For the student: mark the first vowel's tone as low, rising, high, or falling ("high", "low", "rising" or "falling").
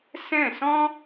falling